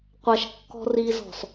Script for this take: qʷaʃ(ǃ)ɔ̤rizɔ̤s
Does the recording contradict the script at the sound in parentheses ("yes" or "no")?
yes